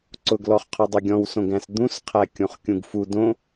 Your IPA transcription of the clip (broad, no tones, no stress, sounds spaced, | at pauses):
ǀ ʊ ɡ l ɔ χ qʰ ʊ dˤ ʊ ɡʲ ɔ̃ w s õ ɡ æ̃ s d̪ ũ s qʰ æ kʲ õ χ kʲ ũ ɡ f u d õ